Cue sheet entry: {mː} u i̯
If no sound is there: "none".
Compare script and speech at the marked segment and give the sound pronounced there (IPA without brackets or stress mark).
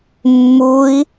mː